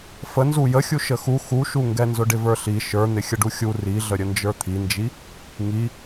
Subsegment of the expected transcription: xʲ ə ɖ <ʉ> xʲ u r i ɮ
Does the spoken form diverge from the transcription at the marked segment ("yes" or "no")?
yes